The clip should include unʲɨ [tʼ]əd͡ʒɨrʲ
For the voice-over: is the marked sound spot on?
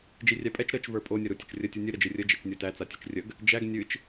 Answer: no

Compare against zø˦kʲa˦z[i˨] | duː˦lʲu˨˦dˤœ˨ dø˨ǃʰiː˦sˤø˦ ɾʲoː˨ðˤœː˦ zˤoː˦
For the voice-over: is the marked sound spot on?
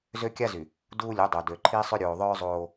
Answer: no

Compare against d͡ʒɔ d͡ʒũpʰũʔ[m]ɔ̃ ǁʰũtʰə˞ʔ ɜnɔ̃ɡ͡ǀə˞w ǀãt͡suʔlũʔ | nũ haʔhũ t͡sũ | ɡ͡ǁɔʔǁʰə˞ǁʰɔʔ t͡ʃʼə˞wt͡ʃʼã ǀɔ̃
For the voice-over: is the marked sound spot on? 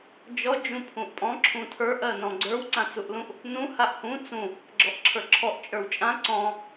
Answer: no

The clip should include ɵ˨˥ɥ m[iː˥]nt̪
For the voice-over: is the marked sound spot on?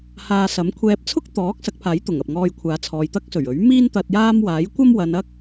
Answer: yes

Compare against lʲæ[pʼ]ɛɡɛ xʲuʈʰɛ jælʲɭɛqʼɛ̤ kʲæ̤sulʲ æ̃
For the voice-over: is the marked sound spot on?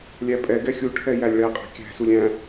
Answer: yes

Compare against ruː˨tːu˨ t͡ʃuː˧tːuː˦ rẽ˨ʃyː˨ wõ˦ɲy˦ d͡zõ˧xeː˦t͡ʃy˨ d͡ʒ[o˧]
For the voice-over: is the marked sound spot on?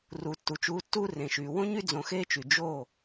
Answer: no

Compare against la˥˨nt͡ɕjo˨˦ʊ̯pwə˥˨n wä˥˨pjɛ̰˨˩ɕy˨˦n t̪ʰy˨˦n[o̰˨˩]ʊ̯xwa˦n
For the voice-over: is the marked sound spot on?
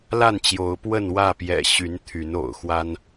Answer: yes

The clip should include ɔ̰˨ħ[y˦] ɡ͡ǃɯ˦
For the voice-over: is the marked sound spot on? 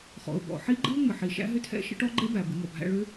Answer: no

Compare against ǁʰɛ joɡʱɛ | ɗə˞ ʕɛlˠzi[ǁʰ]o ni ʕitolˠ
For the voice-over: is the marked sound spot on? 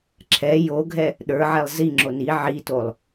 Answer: no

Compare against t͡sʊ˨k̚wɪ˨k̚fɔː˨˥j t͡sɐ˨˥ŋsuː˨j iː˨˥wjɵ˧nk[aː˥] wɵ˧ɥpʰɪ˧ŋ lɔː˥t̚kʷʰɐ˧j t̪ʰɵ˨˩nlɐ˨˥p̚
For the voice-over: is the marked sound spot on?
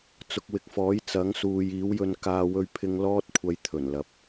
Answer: no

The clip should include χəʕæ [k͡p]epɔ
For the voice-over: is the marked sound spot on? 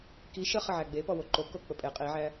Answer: no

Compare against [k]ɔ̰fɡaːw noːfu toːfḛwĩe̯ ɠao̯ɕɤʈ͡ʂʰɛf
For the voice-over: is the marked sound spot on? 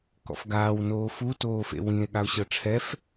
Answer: yes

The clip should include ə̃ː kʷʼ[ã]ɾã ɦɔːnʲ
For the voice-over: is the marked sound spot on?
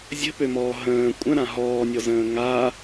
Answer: no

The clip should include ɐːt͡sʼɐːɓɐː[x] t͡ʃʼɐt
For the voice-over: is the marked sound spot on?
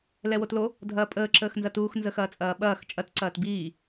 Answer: yes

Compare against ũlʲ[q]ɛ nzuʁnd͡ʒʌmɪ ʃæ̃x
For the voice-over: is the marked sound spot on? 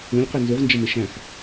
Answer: yes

